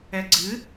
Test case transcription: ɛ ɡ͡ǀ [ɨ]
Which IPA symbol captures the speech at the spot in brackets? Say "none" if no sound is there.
ɨ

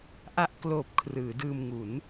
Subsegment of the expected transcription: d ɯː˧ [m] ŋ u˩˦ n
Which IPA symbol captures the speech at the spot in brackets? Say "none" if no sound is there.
m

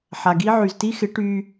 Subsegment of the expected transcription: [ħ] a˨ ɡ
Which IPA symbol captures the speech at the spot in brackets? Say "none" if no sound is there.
ħ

